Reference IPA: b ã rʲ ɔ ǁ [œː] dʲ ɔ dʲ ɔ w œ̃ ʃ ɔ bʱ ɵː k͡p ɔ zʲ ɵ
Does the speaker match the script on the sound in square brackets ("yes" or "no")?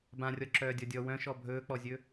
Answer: yes